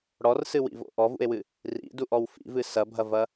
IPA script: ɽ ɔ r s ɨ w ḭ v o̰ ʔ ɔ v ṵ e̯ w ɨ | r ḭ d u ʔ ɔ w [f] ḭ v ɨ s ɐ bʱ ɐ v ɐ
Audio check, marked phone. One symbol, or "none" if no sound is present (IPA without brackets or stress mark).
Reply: f